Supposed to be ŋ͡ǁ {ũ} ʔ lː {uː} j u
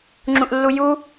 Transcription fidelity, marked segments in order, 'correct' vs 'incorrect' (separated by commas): correct, incorrect